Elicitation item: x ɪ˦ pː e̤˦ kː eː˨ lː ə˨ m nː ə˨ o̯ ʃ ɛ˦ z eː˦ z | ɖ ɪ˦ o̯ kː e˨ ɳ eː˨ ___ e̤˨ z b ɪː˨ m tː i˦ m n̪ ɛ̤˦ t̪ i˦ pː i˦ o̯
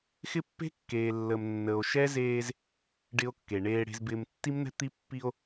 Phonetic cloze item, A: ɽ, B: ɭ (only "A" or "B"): A